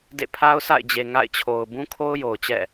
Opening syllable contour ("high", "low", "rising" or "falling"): falling